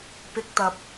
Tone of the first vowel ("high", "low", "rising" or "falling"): high